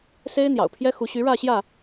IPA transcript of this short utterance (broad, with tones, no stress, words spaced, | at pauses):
se˦ɪ̯ n̪jɑ̰˨˩ʊ̯pʰjɛ˦xu˨˦ ɕy˨˦ɻä˥˨ɕjä˥˨